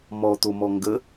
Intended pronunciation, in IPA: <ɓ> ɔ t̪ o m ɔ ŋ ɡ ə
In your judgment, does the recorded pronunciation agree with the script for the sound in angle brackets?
no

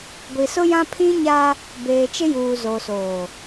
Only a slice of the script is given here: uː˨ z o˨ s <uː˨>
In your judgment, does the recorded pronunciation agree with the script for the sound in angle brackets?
no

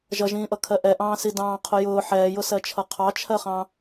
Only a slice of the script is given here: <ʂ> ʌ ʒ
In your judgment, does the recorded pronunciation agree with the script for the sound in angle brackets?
no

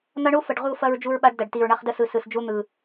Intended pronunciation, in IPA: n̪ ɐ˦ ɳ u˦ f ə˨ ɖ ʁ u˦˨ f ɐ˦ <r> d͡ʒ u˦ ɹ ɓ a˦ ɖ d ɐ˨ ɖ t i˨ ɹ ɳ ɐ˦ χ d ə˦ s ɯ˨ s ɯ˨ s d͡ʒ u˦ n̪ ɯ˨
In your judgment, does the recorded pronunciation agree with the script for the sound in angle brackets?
no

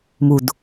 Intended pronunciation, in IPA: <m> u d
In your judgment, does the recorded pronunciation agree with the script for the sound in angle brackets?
yes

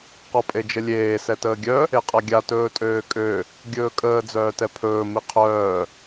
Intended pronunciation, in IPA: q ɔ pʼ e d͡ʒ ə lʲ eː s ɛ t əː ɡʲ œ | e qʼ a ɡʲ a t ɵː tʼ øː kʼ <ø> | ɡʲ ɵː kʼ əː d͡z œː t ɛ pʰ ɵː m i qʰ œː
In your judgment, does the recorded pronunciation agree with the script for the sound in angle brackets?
yes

